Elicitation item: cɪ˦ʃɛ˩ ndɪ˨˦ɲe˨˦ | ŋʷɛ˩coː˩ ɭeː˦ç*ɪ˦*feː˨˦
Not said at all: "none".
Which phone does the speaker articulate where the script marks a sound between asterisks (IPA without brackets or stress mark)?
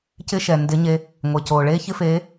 ɪ˦